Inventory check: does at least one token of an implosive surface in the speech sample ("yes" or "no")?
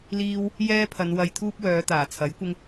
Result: no